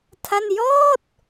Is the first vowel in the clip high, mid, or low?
low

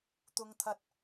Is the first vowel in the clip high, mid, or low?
high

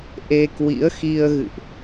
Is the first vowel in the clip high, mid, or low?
mid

